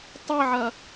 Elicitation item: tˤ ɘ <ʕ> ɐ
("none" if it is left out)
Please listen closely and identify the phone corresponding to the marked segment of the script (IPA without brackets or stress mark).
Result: ʕ